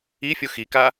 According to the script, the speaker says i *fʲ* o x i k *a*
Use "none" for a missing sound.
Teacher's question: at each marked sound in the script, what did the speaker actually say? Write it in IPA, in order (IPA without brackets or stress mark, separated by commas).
fʲ, a